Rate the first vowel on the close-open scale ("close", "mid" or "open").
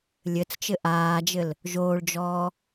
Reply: mid